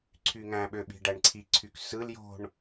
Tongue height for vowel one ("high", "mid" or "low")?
high